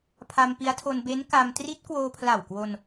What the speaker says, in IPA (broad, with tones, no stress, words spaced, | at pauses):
pʰa˧mpi˦˥a̯tʰo˧n be˦˥nka˧m tri˦˥t̚kwoː˧pʰla˨˩wkwo˧n